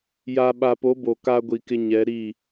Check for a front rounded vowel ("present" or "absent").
absent